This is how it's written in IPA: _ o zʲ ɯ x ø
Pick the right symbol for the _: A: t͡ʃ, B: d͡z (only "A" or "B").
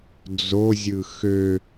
B